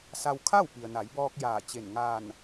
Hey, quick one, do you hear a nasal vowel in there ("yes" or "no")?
no